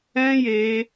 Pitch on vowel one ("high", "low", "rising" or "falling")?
high